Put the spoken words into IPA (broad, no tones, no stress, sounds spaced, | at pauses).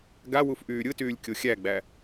ɡ a w u f ʔ yː ɾʲ ɯ t yː lʲ kʲ o xʲ æ ɡ͡b æ